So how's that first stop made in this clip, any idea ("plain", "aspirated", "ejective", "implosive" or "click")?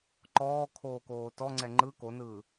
click